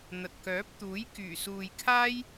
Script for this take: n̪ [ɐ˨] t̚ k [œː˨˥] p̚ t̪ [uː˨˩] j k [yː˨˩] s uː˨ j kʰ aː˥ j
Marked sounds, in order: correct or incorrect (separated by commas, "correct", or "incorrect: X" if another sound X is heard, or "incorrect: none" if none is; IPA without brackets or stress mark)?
correct, correct, incorrect: uː˨˥, correct